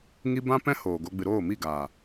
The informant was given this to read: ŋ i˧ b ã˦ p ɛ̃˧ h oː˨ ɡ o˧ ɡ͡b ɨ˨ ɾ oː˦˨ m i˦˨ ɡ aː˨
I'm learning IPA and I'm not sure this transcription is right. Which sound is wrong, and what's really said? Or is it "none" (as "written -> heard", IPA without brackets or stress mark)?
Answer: ɛ̃˧ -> ɛ̃˦